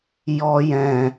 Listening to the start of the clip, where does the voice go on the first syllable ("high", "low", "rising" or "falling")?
high